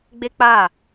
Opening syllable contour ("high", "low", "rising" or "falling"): high